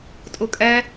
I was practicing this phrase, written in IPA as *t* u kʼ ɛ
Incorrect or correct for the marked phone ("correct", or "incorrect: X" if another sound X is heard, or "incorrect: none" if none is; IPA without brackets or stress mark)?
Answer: incorrect: tʼ